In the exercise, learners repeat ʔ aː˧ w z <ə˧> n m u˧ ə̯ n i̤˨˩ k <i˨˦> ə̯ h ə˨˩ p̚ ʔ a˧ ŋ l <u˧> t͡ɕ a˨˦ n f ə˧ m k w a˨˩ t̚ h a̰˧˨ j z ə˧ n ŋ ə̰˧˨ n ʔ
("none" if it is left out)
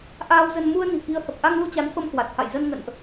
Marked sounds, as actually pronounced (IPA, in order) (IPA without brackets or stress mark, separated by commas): ə˧, i˨˦, u˧